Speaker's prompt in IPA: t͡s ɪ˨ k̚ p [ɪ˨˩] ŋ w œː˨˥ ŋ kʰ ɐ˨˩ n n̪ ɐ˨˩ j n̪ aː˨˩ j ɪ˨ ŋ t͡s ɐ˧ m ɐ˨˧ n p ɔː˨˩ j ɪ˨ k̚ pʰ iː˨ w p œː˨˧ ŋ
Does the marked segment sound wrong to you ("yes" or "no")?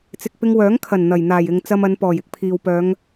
yes